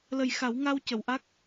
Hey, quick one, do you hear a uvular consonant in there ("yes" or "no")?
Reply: no